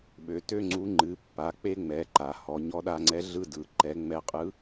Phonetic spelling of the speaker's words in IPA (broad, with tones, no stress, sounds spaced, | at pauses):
ɓ ø˩˧ t ø˥ ŋ͡ǀ u˧˥ ŋ͡ǃ ɨ˩˧ pː a˩˧ k͡p e˥ ŋ͡m ɛ˩˧ ǃ a˩ h ɔ˩˧ ɲ ɔ˧˥ ɗ a˧ ŋ͡ǀ ɛ˧˥ ɮ ɯ˥ d ɯ˩˧ ǃ ɛ˧˥ ŋ͡m ɛ˧ qʼ ɯ˧˥